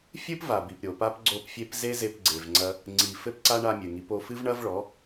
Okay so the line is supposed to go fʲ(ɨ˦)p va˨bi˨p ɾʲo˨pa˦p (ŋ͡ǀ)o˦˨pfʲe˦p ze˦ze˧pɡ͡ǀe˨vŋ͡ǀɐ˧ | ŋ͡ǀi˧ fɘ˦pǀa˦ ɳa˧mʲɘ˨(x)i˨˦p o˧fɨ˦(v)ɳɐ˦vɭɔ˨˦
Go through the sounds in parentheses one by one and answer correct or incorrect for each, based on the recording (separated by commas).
correct, incorrect, incorrect, correct